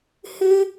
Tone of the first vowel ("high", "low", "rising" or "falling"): high